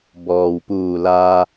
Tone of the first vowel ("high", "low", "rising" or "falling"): low